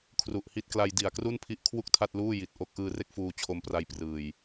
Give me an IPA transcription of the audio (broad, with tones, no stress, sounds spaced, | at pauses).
kʰ r u˨˩ ʔ h i˦˥ t̚ k l a˧ j d i˨˩ a̯ k r u˥˩ n pʰ i˦˥ ʔ kʰ w u˥˩ k̚ tʰ a˥˩ t̚ l uː˥˩ j i˨˩ t̚ ʔ o˦˥ k̚ ʔ ɯː˧ r e˥˩ k̚ f uː˧ t͡ɕʰ o˧ m p r a˧ j p r ɯː˨˩ j